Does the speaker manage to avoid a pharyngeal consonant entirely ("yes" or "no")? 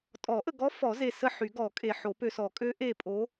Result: no